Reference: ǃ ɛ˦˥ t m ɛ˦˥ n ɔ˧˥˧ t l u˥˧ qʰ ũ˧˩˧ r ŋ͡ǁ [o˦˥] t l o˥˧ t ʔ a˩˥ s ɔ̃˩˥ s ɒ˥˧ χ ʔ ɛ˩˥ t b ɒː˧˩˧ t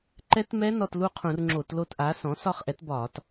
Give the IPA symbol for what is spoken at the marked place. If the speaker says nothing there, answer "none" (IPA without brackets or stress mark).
o˧˩˧